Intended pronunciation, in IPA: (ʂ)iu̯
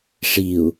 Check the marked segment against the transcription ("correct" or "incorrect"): correct